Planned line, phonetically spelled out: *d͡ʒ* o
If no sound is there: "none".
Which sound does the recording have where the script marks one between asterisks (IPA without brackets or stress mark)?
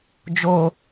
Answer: d͡ʒ